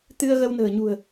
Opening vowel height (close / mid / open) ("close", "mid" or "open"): close